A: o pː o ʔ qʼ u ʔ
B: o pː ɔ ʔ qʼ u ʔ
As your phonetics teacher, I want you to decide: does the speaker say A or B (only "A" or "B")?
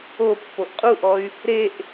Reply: A